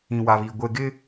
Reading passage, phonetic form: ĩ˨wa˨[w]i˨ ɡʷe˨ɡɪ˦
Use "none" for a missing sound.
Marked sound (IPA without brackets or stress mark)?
β